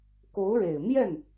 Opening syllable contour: rising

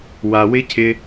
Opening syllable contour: low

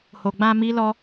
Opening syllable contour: low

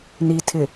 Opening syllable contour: low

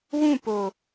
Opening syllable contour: falling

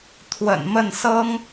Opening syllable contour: low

